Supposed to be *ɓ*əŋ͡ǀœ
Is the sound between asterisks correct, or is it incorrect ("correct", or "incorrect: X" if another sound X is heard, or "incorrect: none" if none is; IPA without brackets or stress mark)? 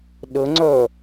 incorrect: ɗ